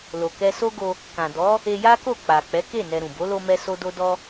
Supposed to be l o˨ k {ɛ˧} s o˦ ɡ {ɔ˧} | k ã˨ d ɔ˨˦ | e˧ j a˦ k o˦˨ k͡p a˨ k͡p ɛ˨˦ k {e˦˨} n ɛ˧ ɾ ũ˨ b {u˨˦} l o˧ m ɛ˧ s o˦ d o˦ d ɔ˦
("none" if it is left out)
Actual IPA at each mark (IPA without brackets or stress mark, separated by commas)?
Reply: ɛ˧, o˧, e˦˨, o˨˦